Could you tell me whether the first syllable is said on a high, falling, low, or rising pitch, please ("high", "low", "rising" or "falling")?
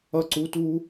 falling